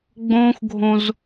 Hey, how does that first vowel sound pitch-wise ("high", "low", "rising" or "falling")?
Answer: high